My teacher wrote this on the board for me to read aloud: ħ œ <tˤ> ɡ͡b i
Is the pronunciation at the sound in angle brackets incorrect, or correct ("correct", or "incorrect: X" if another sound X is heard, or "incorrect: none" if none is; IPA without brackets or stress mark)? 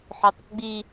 correct